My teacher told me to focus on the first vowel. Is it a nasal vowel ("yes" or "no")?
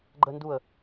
no